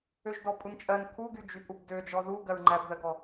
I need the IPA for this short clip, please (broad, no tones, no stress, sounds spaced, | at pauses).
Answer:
ø ʒ d ɔ pʼ u n t͡ʃʼ ɜ n kʰ u ɡ y d͡ʒ y pʼ u b d ø d͡ʒ ɔ ð u ɡ ɜ ɹ ŋ͡ǃ æ b ð ɜ ɡ ɔ